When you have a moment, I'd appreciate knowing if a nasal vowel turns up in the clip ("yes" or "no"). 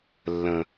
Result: yes